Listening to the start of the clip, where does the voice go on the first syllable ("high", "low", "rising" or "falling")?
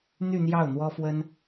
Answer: falling